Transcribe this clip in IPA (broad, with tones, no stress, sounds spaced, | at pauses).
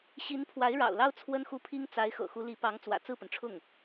ɕ i˧˥ n pʰ w a˧˥ ɪ̯ ɻ ɑ̰˨˩ ʊ̯ l ɑ˥ ʊ̯ t͡sʰ w ə˥ n x u˥˩ pʰ i˥ ŋ t͡s a˧˥ ɪ̯ x ɤ̰˨˩ x u˧˥ l i˧˥ p ɑ˧˥ ŋ t͡s w ä̰˨˩ t͡s ɹ̩˥˩ p ə˩ n ʈ͡ʂʰ ʊ˥˩ ŋ